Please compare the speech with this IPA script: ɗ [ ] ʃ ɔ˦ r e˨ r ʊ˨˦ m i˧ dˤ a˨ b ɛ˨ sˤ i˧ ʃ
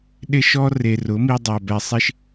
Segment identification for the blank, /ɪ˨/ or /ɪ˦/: ɪ˦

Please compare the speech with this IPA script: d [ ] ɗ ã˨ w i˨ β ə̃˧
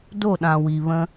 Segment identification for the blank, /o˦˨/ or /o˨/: o˦˨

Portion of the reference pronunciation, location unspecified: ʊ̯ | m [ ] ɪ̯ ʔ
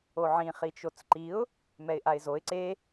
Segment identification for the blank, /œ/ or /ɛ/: ɛ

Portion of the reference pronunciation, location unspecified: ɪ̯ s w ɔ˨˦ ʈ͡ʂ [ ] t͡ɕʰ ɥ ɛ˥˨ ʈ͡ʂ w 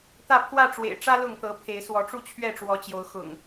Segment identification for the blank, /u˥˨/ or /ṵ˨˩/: u˥˨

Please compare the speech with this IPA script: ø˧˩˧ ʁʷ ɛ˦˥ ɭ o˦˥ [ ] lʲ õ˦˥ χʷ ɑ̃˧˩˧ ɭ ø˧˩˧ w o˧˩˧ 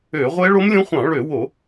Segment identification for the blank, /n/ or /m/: m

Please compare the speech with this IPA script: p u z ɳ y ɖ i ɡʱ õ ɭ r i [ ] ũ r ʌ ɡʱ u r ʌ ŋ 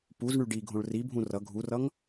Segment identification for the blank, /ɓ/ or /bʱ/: bʱ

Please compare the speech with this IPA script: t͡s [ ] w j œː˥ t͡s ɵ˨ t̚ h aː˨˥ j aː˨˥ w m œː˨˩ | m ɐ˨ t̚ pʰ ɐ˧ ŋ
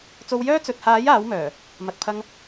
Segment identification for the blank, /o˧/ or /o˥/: o˧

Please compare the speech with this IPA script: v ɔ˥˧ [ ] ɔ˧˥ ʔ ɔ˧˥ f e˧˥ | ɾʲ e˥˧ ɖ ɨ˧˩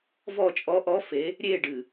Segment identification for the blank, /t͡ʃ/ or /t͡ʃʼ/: t͡ʃʼ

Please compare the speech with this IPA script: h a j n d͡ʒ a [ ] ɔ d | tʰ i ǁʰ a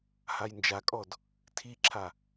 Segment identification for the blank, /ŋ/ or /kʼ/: kʼ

